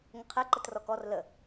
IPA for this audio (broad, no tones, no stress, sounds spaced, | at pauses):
ŋ ə qʰ ɛ ǃ ə t r ɔ k ɔ r l ə